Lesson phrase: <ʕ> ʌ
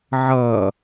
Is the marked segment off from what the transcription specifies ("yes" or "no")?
no